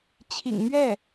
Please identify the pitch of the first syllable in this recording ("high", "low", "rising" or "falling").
low